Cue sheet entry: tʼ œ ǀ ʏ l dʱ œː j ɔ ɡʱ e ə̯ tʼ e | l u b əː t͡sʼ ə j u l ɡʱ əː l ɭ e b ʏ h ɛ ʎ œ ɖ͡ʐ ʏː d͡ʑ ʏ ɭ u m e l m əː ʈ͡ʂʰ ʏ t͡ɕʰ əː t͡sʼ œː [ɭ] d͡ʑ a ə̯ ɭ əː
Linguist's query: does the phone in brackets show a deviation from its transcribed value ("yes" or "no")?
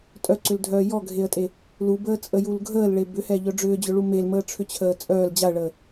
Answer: yes